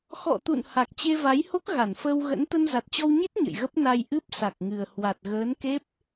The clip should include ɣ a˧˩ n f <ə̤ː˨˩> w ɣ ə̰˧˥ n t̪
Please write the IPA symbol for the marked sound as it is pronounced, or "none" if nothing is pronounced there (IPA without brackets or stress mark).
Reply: əː˧